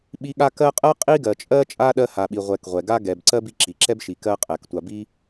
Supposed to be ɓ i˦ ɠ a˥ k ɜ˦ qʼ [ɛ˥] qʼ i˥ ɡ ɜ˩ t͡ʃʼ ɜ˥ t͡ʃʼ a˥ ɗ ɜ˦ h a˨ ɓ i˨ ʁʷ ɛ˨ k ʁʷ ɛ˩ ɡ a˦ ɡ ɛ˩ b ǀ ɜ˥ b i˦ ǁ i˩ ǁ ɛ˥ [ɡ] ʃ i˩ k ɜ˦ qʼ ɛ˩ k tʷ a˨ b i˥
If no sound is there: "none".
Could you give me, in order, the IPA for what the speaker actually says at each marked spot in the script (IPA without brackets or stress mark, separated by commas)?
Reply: ɜ˥, b